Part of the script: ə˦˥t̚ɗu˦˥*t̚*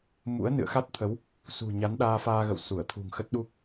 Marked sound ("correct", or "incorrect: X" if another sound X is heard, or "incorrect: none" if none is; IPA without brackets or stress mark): incorrect: k̚